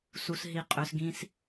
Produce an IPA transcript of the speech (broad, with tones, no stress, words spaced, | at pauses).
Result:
su˦sɦi˦qʼø˦s ɡĩ˦s